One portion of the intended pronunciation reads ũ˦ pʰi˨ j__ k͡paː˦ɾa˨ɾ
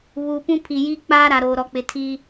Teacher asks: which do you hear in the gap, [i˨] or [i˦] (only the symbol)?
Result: i˦